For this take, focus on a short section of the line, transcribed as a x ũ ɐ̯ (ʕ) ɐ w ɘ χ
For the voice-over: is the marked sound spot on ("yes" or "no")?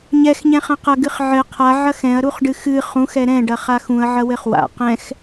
yes